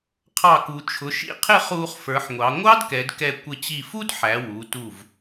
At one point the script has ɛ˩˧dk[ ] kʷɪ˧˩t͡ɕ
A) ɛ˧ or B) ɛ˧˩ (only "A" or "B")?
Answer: B